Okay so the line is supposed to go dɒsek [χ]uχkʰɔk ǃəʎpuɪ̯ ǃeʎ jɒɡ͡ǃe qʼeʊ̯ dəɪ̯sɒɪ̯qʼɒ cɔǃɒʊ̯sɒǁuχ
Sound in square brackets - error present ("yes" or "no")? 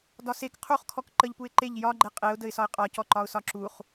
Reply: yes